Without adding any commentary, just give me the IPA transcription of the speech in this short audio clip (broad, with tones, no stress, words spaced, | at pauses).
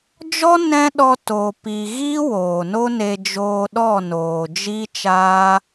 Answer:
d͡ʒɔ˦ nɛ̃˦ ɗɔ˧ to˨pi˨ɣi˦ woː˨no˦ne˧ d͡ʒoː˧ɗɔ˦˨noː˨d͡ʒi˦ t͡ʃaː˦